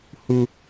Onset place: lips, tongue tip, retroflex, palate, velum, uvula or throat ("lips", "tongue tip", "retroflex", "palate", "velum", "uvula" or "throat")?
throat